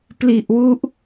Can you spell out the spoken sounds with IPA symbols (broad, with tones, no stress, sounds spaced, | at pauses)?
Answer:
p l i˨˩ ʔ w u˦˥ ʔ